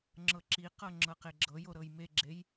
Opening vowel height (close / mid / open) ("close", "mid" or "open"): mid